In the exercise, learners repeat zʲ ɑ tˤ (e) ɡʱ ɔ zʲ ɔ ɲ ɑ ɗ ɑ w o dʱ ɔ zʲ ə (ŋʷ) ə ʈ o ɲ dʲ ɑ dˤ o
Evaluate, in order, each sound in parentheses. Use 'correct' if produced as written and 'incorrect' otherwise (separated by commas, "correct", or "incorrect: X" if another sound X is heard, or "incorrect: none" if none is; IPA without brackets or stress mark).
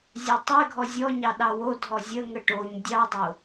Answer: correct, incorrect: ŋ